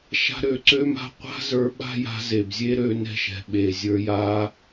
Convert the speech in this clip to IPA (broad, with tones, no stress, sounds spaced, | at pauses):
ʃ a̤˧ ɾ ø˨ ǀ ø˦ m a̤˦ qʷ a̤˦ z ə˞˨˦ ɓ a̤˦ j a̤˧ z e˨ b zʲ e˦ ɾ ø˧ n ɛ̤˧ ʃ ɛ̤˨ ɓ e˨ zʲ ə˞˧ j a˦